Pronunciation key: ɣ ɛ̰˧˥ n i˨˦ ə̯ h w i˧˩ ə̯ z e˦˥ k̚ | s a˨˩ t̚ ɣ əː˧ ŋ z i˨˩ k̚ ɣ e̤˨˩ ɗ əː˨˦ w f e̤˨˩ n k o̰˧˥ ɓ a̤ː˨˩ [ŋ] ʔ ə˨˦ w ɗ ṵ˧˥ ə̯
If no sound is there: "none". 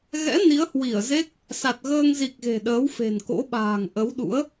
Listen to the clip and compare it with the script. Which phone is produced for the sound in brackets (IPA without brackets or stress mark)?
ŋ